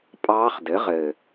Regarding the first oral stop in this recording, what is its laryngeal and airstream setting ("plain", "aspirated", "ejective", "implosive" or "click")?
ejective